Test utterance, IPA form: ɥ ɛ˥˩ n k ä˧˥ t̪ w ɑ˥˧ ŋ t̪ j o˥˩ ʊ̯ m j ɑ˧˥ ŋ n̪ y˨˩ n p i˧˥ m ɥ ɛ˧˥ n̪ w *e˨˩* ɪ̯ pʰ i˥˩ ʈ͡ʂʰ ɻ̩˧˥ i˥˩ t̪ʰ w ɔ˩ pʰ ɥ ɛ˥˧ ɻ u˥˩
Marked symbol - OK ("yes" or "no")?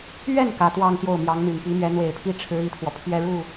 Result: yes